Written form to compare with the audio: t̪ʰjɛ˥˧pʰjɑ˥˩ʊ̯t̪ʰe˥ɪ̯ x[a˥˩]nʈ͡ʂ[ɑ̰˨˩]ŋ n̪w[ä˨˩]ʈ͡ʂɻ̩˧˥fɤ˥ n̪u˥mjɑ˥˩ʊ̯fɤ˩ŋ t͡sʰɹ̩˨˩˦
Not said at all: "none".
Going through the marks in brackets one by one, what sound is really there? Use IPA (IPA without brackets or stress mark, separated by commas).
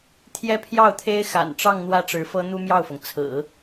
a̰˨˩, ɑ˥˧, ä˥˩